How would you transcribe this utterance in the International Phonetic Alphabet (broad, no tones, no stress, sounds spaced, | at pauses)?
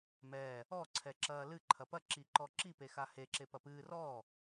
m ɛ | ɔ ǀʰ ɛ ǁ ɐː l ɨ ǃʰ ɐ p ɐ ǁ i ǃ ɔ ǁ i p e x a h e ǁ e p ɐ p ɨː r ɔ